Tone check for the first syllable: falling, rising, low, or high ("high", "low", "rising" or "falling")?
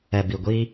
low